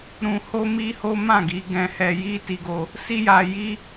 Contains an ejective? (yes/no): no